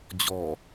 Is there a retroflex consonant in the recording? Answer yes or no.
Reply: no